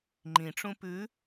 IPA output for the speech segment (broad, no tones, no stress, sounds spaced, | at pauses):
ŋ͡ǃ ĩ ʈ͡ʂ ũ p ʉ